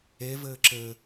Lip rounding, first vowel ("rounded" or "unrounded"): unrounded